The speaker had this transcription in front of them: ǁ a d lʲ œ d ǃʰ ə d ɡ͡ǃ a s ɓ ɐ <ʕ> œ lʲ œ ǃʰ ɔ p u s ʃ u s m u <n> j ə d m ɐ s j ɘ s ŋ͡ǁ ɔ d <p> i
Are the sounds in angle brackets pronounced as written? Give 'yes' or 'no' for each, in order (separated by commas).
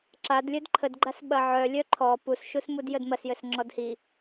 yes, no, no